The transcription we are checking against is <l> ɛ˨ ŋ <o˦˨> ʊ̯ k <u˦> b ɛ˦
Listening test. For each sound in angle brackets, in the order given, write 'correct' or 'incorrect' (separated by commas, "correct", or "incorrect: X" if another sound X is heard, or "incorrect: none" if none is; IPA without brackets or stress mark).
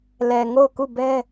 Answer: correct, correct, incorrect: u˦˨